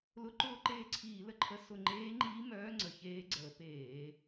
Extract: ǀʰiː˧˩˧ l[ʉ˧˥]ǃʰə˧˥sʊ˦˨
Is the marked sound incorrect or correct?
incorrect